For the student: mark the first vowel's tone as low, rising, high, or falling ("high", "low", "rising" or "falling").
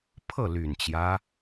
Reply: falling